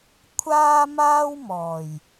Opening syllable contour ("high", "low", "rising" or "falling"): high